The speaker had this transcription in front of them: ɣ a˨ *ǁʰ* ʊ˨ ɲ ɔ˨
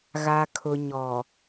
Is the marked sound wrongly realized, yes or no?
yes